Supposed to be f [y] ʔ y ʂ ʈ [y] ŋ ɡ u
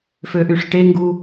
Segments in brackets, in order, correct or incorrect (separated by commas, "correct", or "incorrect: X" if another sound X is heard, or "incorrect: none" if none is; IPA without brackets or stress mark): incorrect: ø, incorrect: e